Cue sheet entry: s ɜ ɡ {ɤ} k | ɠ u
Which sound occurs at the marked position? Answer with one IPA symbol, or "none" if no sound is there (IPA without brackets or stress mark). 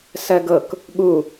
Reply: ɤ